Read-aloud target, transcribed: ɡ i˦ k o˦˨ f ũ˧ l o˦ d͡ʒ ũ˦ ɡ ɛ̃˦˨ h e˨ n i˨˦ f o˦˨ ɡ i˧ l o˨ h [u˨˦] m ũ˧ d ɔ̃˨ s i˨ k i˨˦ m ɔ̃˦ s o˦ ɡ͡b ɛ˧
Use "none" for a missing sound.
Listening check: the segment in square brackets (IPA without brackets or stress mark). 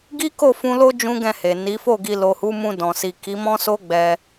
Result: u˨˦